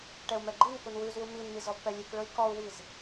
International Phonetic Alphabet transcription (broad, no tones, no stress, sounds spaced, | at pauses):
ʈ ɛ u̯ m ɛ ɡ͡ǃ i n k u n w ʉ z w u m i n m i z ɔ b p ɛ lʲ ʉ k ɭ ɵ i̯ k ɔ u̯ w i z